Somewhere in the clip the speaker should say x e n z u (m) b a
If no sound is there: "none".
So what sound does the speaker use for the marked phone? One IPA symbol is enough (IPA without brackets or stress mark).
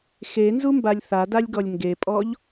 m